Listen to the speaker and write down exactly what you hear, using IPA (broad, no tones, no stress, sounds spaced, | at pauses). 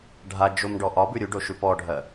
ɖʱ a d͡ʒ o m ɖ ɔ ʔ ɒ b ʉ ɾʲ u ɖ o ʃ ʉ p ɔ ɖʱ ɜ